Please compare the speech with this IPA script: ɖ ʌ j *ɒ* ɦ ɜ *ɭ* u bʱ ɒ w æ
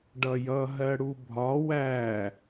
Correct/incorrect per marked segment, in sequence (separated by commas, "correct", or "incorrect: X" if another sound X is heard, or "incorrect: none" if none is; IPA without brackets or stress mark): incorrect: ʌ, incorrect: ɽ